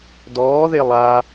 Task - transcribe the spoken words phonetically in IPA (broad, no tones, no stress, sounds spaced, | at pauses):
d ɔː ð e lˠ a